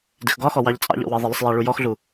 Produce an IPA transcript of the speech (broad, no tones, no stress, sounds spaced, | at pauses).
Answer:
d ɪ x ɡ ɒ x ɔ w ɑ ʎ t͡sʼ ɑ̰ ʎ ɔ̰ w ɜ ðˤ ə lˠ ɪ sˤ j æ ɭ u j ɔ x ɮ u